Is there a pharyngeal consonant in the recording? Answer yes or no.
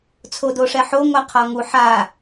yes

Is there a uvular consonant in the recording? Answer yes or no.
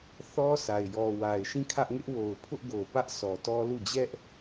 no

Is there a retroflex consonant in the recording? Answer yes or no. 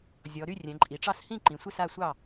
yes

